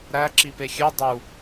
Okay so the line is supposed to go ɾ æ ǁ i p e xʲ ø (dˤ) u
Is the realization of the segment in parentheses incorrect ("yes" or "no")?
no